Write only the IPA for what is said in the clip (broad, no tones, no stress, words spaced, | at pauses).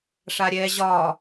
ʂaɾʲɛ ʑɒ